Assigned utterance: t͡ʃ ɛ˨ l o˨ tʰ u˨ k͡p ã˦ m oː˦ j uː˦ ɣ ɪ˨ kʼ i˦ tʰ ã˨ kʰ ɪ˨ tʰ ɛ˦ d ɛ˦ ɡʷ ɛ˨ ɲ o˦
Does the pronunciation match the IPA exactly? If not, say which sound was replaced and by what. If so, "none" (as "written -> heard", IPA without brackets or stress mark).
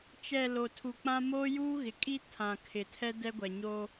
none